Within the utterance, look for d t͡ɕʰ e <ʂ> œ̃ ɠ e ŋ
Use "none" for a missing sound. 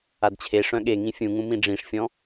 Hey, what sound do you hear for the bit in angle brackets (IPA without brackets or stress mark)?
ʂ